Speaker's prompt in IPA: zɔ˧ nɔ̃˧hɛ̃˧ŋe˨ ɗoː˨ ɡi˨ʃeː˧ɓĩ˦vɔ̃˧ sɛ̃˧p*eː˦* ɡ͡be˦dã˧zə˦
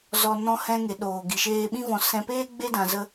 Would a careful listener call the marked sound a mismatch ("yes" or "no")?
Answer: no